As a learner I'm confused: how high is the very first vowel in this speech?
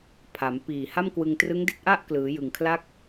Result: low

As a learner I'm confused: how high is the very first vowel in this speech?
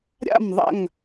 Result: low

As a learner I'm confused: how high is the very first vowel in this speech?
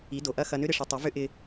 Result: high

